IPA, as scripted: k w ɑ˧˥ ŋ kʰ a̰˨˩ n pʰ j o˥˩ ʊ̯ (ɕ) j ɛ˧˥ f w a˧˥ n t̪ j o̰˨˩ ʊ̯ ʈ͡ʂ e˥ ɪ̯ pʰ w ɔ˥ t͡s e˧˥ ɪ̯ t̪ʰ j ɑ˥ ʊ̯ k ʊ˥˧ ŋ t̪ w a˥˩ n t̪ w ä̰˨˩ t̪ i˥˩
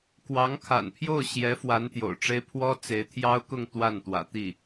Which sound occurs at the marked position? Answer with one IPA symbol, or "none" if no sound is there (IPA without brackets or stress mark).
ɕ